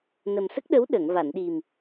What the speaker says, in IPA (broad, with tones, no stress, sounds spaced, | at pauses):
n ə˨˩ m s ə˦˥ k̚ ɗ ə˧˥ w ɗ əː˨˩˨ ŋ v a˨˩˨ n ɗ i˨˩ m